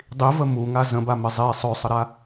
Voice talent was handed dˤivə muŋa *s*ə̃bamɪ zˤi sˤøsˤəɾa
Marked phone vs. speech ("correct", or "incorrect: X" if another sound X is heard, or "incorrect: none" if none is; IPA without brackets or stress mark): incorrect: z